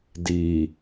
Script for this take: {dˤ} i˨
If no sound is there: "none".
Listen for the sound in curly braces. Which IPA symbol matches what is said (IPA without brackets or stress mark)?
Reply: d